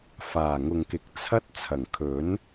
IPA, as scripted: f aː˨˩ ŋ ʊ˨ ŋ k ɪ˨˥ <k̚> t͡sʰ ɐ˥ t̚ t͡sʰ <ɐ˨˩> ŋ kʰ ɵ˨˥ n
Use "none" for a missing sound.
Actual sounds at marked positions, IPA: k̚, ɐ˨˩

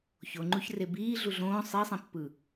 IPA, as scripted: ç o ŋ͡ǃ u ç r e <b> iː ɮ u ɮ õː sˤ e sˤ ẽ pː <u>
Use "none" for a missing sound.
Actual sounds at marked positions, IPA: b, ɯ

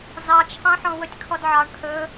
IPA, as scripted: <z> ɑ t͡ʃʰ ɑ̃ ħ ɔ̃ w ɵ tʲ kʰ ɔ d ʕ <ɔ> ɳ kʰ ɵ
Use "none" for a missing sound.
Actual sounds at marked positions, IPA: z, ɑ

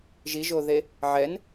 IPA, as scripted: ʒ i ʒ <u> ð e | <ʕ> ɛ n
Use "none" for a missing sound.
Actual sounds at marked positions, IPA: o, ʕ

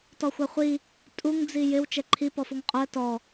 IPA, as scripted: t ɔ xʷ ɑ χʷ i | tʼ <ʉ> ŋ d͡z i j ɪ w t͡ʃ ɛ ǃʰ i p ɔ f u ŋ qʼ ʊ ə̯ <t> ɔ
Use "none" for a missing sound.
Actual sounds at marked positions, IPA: u, t

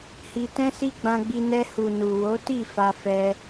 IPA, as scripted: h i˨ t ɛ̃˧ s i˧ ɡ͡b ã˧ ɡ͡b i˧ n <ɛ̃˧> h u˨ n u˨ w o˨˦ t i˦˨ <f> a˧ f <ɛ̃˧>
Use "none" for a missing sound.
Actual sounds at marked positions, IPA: ɛ˧, f, ɛ˧

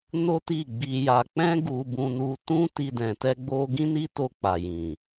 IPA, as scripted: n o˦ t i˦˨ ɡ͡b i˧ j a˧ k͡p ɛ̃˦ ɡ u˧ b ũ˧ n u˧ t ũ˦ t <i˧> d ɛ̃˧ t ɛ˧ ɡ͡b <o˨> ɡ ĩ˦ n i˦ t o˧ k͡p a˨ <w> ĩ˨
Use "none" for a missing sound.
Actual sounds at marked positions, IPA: i˦, o˧, j

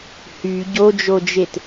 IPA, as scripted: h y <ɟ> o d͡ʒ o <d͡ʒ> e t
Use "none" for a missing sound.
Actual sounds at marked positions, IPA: ɟ, d͡ʒ

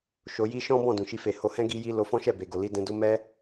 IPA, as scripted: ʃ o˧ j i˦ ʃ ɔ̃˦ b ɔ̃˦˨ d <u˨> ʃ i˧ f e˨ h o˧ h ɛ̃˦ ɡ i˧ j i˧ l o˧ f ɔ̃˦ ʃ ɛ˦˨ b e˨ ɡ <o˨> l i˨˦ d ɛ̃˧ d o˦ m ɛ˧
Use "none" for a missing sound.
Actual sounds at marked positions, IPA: ũ˨, o˨

